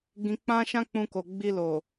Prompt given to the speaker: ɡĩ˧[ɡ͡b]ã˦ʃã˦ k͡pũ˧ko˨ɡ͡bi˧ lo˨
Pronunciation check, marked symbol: incorrect: k͡p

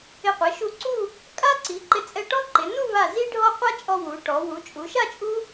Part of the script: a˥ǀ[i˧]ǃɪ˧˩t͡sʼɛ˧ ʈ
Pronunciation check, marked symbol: incorrect: i˩˧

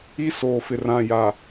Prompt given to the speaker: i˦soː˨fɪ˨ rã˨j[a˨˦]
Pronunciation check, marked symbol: incorrect: a˨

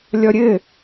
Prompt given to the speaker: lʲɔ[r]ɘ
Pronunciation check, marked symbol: incorrect: ɾʲ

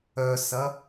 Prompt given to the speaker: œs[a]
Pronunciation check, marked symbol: incorrect: ɐ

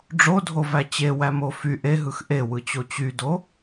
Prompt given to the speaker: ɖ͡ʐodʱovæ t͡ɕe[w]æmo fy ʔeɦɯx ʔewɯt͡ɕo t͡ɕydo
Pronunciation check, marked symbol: correct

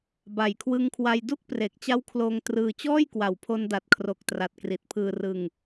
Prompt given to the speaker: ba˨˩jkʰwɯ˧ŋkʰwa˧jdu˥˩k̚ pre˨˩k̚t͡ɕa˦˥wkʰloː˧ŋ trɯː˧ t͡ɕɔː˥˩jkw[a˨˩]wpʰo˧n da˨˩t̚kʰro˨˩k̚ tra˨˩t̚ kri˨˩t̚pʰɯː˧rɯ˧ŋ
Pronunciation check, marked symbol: correct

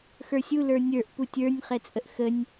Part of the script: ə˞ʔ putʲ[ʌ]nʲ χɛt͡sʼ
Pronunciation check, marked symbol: incorrect: ə˞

